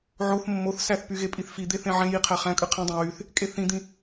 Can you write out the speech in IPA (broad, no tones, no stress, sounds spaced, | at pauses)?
ʕ o θ mː o θ s æ θ p y ɣ e pʼ i θ f i d̪ e θ ẽ ʕ ẽ j i qʰ æ χ æ̃ kʼ ɯ qʰ ĩ dˤ ẽ w y θ | kʼ e θ ĩ d̪ ĩ